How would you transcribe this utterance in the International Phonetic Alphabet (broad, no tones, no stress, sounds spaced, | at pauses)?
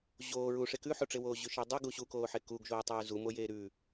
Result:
ʑ oː ɹ u ʂ e k ʉ ħ o ʈ͡ʂ e w oː ʑ ʉ ʃ e dˤ u ɡ u ɕ u k oː ħ e k u ɡ ʒ oː tˤ ʉː z u m o j eː ɾ ʉ